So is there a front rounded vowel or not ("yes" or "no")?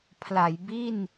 no